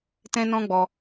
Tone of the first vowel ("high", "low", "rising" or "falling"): high